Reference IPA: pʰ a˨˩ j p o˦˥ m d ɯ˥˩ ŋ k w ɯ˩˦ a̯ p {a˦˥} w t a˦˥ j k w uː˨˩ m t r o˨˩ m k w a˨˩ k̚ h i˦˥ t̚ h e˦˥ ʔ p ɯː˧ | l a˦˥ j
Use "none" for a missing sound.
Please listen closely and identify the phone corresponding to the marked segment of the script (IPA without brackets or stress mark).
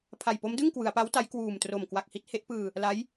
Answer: a˦˥